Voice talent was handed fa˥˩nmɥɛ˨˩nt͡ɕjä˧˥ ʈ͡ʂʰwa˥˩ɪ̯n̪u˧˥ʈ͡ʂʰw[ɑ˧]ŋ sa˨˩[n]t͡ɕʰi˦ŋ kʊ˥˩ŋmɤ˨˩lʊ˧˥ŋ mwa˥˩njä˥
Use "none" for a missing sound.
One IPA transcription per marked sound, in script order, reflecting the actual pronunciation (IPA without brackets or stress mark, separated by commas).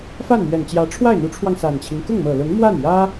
ɑ˧, n